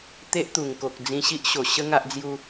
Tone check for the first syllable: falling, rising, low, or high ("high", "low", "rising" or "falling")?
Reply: high